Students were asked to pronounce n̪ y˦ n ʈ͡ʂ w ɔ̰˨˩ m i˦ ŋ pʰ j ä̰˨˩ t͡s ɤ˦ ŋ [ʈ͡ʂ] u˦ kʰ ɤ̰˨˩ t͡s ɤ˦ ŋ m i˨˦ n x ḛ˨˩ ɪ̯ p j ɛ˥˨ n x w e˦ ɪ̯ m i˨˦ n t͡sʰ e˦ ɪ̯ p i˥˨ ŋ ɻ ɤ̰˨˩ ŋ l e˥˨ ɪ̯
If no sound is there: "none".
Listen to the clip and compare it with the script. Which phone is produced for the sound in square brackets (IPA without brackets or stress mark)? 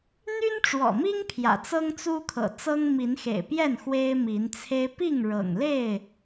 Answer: t͡s